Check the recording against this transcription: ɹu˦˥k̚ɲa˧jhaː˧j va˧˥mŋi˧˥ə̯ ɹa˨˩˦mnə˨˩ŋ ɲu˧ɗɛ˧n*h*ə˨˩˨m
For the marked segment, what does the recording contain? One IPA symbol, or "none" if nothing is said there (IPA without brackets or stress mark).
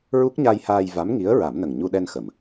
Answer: x